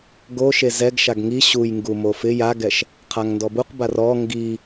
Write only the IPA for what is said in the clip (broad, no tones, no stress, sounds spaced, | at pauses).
ɡ o ʃ e z ɛ ɡ ʃ a ɡ ŋ i ɕ u j ŋ ɡ u m o f ɪ j a ɡ ɛ ʃ | qʰ a ŋ n d ɔ b u q b a r ɔ ŋ ɡ i